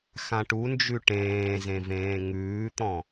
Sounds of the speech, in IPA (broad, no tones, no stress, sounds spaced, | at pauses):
x ã ʈ u n d͡ʒ ʉ ʈ ẽː z ẽ v ẽː ŋ ʉː t̪ ɔ̃